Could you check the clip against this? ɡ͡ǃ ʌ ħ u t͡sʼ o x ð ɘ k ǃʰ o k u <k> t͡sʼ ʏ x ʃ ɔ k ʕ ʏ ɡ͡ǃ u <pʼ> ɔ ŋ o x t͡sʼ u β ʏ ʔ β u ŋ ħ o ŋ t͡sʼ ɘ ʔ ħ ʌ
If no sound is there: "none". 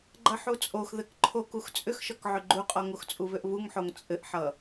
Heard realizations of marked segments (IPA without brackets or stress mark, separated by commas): x, qʼ